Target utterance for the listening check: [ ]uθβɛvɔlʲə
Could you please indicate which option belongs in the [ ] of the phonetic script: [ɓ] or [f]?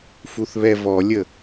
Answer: f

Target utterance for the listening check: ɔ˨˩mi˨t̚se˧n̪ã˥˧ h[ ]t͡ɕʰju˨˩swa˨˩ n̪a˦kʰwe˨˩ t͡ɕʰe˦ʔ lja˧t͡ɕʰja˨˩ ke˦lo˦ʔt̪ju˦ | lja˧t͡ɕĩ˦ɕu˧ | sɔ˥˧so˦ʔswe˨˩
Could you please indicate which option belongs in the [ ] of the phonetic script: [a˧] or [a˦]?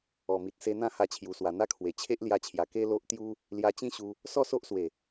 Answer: a˧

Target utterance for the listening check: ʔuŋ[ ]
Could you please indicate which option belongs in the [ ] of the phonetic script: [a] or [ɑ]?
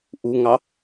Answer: ɑ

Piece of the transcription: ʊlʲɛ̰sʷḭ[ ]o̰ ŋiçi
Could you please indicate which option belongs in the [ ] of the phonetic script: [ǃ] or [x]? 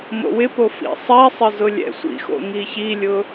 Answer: x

